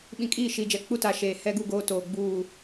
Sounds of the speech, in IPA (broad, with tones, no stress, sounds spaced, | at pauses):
ɓ ĩ˨ kʼ iː˦˨ ʃ iː˨ d͡ʒ ɛ˨ k͡p u˦ t a˨ ʃ eː˨ h ɛ˦ ɡ u˦˨ ɡ oː˦ t oː˨ ɡ͡b uː˦˨